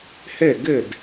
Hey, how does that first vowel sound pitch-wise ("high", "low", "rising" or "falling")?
falling